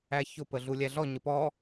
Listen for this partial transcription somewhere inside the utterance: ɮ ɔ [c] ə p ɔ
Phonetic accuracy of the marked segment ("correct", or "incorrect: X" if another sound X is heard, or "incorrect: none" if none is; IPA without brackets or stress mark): incorrect: ɲ